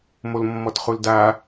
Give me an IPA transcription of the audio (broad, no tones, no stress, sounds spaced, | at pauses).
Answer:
m o l mː ɔ t χ u l d a